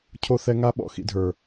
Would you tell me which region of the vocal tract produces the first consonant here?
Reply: palate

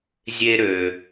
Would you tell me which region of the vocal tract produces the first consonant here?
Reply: tongue tip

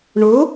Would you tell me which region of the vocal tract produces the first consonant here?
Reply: retroflex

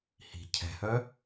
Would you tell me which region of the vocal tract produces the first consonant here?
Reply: throat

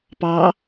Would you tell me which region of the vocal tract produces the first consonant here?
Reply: lips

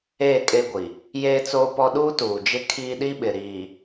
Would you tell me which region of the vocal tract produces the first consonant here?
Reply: velum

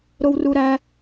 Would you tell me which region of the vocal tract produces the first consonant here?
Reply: tongue tip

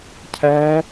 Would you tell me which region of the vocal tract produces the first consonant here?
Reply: palate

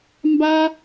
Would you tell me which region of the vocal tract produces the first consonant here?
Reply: lips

